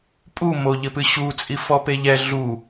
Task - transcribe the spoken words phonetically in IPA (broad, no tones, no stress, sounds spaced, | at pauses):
pʼ u m o ʎ ɘ p ɨ ɕ u t͡sʼ i f ɔ p e ʎ ɛ ɮ u